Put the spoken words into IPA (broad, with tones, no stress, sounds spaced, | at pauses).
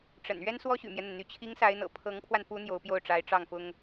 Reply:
ʈ͡ʂ ə̰˨˩ n ɥ ɛ˥ n s w ɔ˥ ɕ y̰˨˩ m j ɛ˦ n̪ ə˩ n n̪ y˧˥ t͡ɕʰ i˧˥ ŋ s a˧˥ ɪ̯ n̪ ɤ̰˨˩ pʰ ɤ˧˥ ŋ pʰ w a˧ n p u˧˥ n̪ j o˧˥ ʊ̯ p j o˥˩ ʊ̯ ʈ͡ʂ a˧˥ ɪ̯ ʈ͡ʂ ɑ˥˩ ŋ f ʊ˥ ŋ